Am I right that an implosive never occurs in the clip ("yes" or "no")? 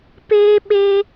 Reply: no